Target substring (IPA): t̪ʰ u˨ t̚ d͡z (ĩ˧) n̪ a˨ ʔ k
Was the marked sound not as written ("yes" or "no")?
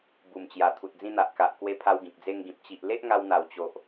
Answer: no